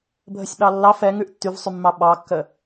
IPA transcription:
bʱ ə sʲ ɓ ɑ lː ɑ f ɛ ŋ ʉ ʔ tː y v sˤ y mː ɑ ɓ ɑ kː ə

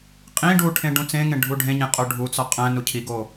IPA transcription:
qʼ ĩ ɖ u ʈʰ ẽ ɖ ũ t͡s ẽ ŋ ẽ ɖʱ u ɖʱ ẽ ɲ ẽ qʼ o ɖʱ u t͡s ɒ qʼ æ̃ n u cʰ i ɡ o

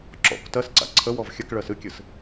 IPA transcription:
ǁ ɔ̰ k t ɜ s ǀ a̰ ǀʰ ə w ɔ v xʲ ə k ɭ ɜ s ɨ kʲ ɨ s

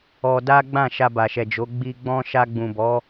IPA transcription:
ɔ˧ d a˦ ɡ͡b ã˦˨ ʃ a˧ b a˨ ʃ ɛ˨ d͡ʒ o˨˦ ɡ͡b i˧ ɡ͡b ɔ̃˦ ʃ a˧ ɡ͡b ũ˨ b ɔ˨˦

